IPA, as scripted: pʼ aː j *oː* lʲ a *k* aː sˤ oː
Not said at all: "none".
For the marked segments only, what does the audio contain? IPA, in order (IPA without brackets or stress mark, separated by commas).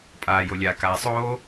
o, k